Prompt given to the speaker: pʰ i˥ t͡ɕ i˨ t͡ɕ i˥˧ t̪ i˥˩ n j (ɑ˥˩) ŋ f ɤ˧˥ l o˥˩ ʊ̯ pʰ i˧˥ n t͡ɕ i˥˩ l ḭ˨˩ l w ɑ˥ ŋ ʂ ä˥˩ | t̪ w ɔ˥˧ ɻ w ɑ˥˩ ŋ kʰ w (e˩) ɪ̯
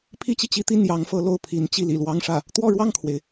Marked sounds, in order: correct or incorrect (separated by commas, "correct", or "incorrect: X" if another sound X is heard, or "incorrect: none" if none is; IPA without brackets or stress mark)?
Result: incorrect: ɑ˧˥, correct